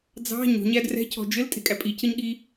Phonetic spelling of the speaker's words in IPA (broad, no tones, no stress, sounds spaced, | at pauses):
d͡z ɑ̤ ɲ o̤ ɲ æ d r ɛ̤ cʰ ɔ̤ d͡ʒ ɘ l tʼ e̤ kʼ æ pʼ i cʰ ɘ ɲ ɠ i